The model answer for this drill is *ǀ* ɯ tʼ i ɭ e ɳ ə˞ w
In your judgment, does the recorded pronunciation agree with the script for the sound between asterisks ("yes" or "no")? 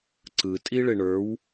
yes